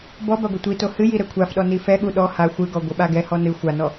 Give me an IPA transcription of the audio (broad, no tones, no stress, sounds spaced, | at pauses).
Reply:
b ɔ b a ɡʷ ɘ tʷ i t o h ɨ j i ɾ ɛ kʷʰ a f ɗ ɔ n i f ɛ ɠ u ɗ ɔ h a xʷ ɨ ɡ ɔ ɡʷ ɨ ɓ a ɡ ɛ h ɔ n ɨ xʷ a n ɔ